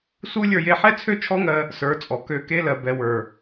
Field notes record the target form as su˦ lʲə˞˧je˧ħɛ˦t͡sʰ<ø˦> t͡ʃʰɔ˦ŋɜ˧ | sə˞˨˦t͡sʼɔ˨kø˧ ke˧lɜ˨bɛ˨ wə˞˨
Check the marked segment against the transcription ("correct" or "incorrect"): correct